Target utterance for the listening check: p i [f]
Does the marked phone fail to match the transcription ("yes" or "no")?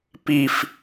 no